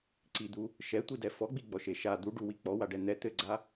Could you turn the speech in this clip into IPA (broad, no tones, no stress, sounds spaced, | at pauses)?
ǀ i d̪ u | ʃ ɛ tʷ i d ɛ f ɔ ɡ͡b i ɡ͡b ɔ ʃ e ʃ a d̪ u ɖ u w i k͡p ɔ w a ɖ ɛ n̪ ɛ t̪ ɘ ɡ͡ǀ a